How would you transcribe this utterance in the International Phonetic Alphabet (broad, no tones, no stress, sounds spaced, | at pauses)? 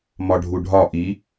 m ɒ ɖʱ u ɖʱ ɒ ʔ i